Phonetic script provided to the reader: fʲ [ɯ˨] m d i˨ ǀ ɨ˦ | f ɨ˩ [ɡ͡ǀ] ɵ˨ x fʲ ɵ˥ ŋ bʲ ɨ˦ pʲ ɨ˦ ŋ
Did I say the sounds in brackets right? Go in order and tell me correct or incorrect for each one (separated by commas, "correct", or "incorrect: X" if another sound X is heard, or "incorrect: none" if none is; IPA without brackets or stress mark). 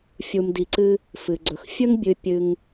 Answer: incorrect: u˨, correct